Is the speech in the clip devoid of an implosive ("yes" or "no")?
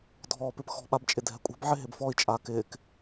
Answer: no